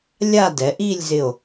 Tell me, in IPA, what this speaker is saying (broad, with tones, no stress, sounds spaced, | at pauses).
lʲ a˥˧ d ɛ˩˧ ʔ i˥˧ lʲ z ɪ˧˩ o̯